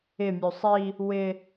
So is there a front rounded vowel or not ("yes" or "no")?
yes